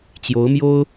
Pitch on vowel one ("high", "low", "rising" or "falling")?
rising